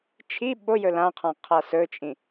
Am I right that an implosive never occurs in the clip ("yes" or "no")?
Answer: no